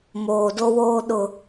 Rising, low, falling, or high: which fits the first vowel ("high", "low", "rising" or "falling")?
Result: low